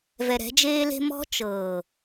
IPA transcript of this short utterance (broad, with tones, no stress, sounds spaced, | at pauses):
v ɛ˨ ɾ ɛ̤˨˦ d͡ʒ eː˦ l e̤˦ m ɔ̤˦ t͡ʃ ɤː˨